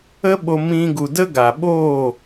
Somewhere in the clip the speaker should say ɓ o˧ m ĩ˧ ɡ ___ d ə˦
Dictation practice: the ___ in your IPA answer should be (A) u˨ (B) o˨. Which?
A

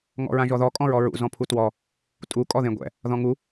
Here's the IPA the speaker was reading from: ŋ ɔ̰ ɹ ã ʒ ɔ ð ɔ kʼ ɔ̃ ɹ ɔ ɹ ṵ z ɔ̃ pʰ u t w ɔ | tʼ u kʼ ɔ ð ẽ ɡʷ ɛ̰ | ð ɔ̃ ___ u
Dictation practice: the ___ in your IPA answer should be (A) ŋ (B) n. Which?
A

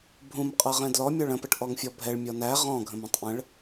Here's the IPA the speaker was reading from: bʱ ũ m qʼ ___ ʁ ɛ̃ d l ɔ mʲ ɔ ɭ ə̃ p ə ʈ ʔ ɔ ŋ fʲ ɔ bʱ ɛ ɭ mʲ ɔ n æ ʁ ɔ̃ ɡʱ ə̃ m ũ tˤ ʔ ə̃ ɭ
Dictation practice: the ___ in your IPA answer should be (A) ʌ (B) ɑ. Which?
A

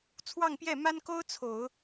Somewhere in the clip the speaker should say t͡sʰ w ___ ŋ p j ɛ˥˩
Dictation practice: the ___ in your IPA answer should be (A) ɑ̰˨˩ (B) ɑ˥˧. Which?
B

